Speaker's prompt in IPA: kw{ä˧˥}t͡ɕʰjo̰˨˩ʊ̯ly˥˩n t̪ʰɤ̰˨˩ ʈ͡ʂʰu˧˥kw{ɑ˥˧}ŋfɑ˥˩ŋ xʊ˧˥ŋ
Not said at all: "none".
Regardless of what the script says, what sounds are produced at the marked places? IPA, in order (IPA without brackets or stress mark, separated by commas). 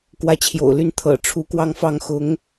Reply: ä˧˥, ɑ˥˧